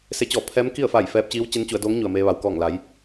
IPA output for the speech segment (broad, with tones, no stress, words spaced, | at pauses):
se˧˥t͡ɕɔː˧˩ pʰɛː˧˥mki˥˨ə̯fa˧˩j fɛː˧p̚t͡ɕiː˧˥w t͡ɕe˧˥nt͡ɕu˩˧ə̯doː˧˥ŋ ɲu˩ə̯meː˧ʋa˩w kɔː˧˩ŋla˩˧j